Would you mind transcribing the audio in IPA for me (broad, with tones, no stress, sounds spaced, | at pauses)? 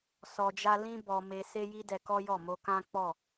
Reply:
s ɔ˨ d͡ʒ a˧ l ĩ˧ b ɔ˨ m e˨ s e˧ j i˦ d ɛ˧ k ɔ˦ j ɔ˦˨ m o˧ k ã˦ k͡p ɔ˦˨